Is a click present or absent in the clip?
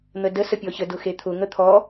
absent